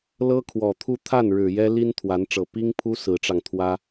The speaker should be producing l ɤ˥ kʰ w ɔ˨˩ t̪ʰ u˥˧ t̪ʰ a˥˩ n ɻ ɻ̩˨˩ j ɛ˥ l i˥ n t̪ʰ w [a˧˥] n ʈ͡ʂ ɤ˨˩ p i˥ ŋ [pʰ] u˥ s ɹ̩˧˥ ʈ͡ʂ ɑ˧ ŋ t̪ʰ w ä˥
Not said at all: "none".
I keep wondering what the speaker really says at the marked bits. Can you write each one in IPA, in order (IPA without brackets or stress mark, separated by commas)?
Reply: a˧˥, pʰ